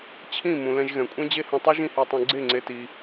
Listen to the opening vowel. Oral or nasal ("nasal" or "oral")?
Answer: nasal